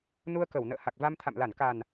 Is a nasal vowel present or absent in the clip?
absent